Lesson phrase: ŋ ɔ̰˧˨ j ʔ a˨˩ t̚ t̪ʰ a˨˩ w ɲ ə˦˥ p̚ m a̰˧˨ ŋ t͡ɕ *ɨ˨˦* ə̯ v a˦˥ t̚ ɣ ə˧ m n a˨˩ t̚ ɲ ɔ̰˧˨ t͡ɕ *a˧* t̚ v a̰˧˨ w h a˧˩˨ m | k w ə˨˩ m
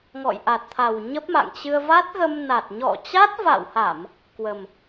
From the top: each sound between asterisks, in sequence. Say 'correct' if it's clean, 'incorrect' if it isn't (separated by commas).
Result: incorrect, incorrect